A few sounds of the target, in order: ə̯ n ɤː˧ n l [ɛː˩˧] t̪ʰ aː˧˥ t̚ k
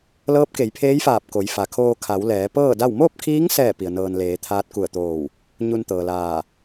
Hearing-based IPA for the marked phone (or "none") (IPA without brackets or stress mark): eː˩˧